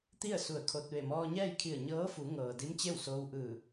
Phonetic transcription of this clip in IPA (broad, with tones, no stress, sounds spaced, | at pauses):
t̪ i˥˨ ə̯ s u˧˩ ə̯ kʰ o˧ t̚ ʋ e˧˩ m ɔː˧ ɲ ɛː˥˨ j kʰ i˧˩ ə̯ ɲ ɤː˧˥ f u˩˧ ŋ ɤː˩ d i˧˥ m t͡ɕ e˥˨ w s oː˧ w ʔ ɯː˧˩